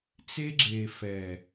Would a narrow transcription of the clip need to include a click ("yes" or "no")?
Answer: yes